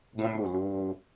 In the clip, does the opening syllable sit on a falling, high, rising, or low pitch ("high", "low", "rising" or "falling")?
high